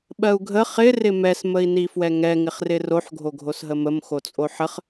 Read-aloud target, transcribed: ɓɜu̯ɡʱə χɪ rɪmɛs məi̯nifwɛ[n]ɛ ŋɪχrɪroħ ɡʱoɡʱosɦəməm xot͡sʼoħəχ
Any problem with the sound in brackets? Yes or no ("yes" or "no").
yes